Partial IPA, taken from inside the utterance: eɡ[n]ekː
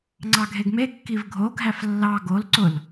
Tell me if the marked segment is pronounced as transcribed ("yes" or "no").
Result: no